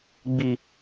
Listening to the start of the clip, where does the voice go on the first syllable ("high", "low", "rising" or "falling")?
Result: low